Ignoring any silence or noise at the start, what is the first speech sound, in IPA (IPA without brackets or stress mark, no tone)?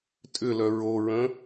tʼ